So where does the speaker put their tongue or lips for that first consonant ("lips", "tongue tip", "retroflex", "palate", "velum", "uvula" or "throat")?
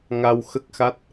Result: velum